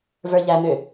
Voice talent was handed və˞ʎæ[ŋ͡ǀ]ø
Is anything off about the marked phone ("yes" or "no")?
yes